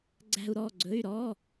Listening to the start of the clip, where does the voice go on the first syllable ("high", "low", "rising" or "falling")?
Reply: high